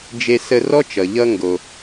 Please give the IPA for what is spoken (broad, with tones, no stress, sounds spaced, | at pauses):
d͡ʒ e˧ s ə˧ r ɔ˥ t͡ʃ ʌ˩ ʎ ʌ˧ ŋ ɡ o˩